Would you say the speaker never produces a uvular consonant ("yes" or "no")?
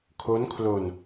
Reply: yes